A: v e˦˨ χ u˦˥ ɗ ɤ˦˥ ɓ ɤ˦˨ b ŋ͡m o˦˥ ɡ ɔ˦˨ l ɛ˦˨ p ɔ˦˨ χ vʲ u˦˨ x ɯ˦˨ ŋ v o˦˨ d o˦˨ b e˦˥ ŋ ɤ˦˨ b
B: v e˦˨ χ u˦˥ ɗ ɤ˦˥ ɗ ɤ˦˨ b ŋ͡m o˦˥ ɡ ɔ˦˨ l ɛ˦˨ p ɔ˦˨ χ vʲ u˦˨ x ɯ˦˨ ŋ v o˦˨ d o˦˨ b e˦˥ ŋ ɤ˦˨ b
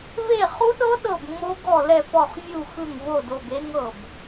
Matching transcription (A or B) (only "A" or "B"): B